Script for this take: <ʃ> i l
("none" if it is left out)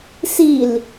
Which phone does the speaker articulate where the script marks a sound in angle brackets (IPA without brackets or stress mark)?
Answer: s